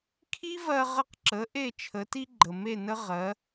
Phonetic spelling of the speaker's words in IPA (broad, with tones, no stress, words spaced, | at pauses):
kʰi˥vɜ˧ʁə˧qǁə˩˥ ʔe˥˩t͡ʃʰə˩˥ti˥ ɡ͡ǃə˩me˥˩nə˥ ʁɜ˩˥